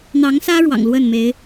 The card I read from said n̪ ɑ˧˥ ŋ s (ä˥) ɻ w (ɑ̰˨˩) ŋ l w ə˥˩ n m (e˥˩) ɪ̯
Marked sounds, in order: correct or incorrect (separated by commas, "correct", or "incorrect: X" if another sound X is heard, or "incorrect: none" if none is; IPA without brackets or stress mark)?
correct, correct, incorrect: e˧˥